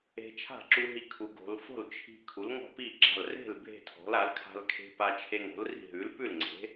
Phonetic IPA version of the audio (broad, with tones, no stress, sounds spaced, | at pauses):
e̤˧ t͡ʃʰ a̤˥˩ ǁ u˧ ɦ i˧ kʰ u˩˧ ɡ o̤˩˧ l f o̤˥˩ l t͡ʃʰ i̤˧ kʰ u˩˥ l ŋ ɔ̤˥˩ p i˥˩ ɡ͡ǁ a̤˥˩ l r e̤˥˩ l bʱ e̤˥˩ tʰ ɔ̤˩˥ l a˩˥ l kʰ a̤˧ l kʰ e̤˧ p a˧ t͡ʃʰ e˧ ŋ o̤˩˥ l r i̤˥˩ ɦ ʉ˩˥ l p ʉ˥˩ l ŋ͡ǀ e̤˩˥